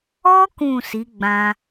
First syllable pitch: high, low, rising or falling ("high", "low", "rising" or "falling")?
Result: high